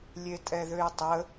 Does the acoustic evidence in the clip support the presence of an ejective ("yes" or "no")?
yes